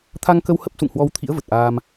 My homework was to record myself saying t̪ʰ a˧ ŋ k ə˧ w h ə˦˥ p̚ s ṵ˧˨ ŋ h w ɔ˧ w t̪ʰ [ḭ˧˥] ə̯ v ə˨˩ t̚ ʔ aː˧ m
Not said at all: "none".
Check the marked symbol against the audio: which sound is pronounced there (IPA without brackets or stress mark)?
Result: ḭ˧˥